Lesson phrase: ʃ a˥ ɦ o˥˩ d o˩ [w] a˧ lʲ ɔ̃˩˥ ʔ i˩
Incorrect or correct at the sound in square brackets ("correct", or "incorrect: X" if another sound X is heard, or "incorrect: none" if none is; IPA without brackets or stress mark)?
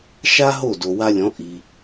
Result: correct